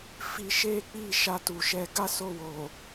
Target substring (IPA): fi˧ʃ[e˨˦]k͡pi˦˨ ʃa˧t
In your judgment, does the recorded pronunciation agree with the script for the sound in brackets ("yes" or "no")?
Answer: no